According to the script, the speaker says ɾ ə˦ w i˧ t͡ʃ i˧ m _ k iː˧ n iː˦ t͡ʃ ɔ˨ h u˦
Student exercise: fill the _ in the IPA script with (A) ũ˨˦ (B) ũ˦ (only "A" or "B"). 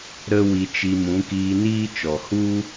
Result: A